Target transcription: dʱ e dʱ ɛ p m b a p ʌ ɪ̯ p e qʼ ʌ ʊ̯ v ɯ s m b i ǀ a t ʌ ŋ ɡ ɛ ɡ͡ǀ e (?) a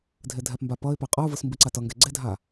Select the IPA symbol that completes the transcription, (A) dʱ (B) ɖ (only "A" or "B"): A